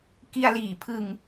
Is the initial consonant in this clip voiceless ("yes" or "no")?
yes